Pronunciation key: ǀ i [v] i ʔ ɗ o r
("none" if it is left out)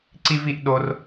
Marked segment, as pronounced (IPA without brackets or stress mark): v